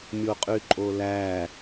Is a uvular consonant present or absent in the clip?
present